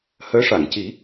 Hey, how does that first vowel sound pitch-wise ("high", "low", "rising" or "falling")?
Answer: rising